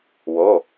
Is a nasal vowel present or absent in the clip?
absent